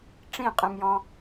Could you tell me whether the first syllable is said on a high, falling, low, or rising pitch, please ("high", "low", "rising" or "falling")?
falling